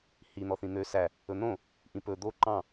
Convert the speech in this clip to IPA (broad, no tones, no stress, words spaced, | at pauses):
hi n̪ɔθĩn̪ø sæ | ɵn̪õ | ʔĩpɵ d̪o ǃɑ̃